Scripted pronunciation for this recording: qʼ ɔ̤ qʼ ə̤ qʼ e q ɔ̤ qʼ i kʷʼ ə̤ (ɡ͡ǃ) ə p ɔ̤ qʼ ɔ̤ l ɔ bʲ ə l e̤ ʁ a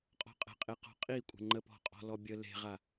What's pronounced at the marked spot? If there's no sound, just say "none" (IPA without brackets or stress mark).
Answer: ŋ͡ǃ